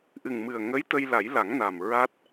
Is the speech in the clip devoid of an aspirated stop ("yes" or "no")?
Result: yes